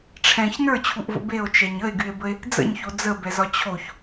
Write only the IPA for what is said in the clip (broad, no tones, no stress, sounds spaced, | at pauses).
ʈ͡ʂʰ ɛ̃ ç n ə˞ t͡ɕʰ u ʔ v ə̰ b e o̯ t͡ʃ ɛ ɲ ə e̯ ɡ y e̯ b ə e̯ | d͡z ə̰ ɲ ç o d͡z ə b ɛ z ɒ t͡ɕʰ o ç